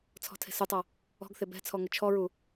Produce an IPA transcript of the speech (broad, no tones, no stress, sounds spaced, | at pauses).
t͡sʰ ɔ̤ tʰ e̤ s u tˤ ɔ | ɔ̤ ɡ θ e b ɛ̤ t͡sʰ ɔ ŋ ʊ t͡ʃʰ ɔ ɹ u